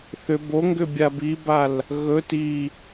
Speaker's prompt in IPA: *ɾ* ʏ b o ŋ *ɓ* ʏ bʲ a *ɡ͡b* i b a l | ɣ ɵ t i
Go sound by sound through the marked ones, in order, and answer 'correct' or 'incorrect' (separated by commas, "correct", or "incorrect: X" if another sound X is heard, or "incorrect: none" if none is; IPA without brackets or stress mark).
incorrect: θ, incorrect: ɡ, incorrect: b